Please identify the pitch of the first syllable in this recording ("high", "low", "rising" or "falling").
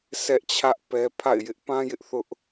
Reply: high